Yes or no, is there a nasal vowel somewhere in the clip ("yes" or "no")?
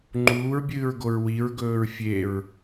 no